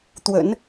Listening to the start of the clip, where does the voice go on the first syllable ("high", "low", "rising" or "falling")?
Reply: low